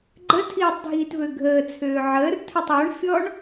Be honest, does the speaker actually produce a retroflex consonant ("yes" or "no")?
yes